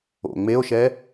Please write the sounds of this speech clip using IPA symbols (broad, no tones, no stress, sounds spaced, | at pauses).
o̰ ŋ͡m e o̯ ʃ ɛ